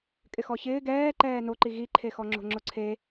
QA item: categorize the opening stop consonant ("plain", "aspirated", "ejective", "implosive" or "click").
ejective